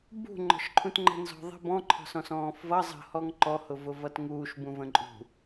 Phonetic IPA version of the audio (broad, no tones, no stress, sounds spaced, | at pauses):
b ṳ ŋ͡ǃ ɔ̤ ʃ ǃʰ ũ t ŋ͡ǃ ə̤ n z ɔ̤ ðˤ ə̤ b ɔ̃ ǃʰ ɔ̤ s ɔ̃ s ɔ̃ː f v ʌ zˤ ə̤ h ɔ ŋ ǃ ɔ h ʊ v ʊ v ʌ t ŋ uː ʃ b ũ v ə̃ ǃʼ ṳ